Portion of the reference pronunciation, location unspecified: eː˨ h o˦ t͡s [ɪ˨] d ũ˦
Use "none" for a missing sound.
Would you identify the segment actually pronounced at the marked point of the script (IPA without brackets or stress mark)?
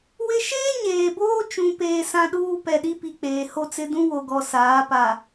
ɪ˦